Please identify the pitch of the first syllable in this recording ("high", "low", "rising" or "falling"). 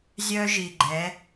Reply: high